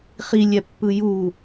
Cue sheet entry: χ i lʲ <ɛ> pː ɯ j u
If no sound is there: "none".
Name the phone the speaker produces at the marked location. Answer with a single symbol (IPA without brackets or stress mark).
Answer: ɛ